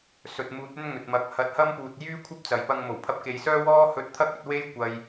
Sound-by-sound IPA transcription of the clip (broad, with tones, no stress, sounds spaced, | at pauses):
s ɵ˨ t̚ m uː˨˥ t̚ ɵ˥ n ŋ ɵ˨ t̚ m ɐ˨˥ k̚ h ɐ˨˥ t̚ h ɐ˥ m p uː˨ t̚ j yː˥ kʷʰ ɐ˥ p̚ t͡s ɐ˨˩ j p ɐ˧ ŋ m o˨˩ w pʰ ɐ˧ p̚ k e˨ j s œː˥ w ɔː˥ h ɵ˧ t̚ t̪ʰ ɐ˥ k̚ ɵ˧ t̚ w e˥ j kʷ ɐ˧ j